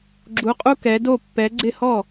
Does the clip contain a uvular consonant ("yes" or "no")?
yes